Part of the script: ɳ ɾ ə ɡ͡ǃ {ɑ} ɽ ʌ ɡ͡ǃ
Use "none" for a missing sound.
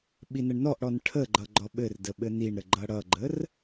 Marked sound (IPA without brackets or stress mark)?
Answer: ʌ